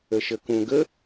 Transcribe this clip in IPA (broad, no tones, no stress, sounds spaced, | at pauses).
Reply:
ə ʃ ə k ũ ɡ ə